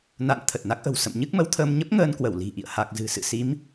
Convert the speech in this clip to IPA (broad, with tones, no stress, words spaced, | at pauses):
na̰˧˨n t̪ʰə˨˩t̚na˦˥k̚ʔə̤˨˩w sə̰˧˨m ɲɨ˦˥k̚mə˨˦wt̪ʰəː˧m ɲə˦˥p̚ ŋəː˧nkwə˧˩w li̤˨˩ ʔḭ˧˨ə̯ha˨˩k̚zɨ̤˨˩ sɨ̰˧˨si˨˦m